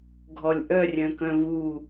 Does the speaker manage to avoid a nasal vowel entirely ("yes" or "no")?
no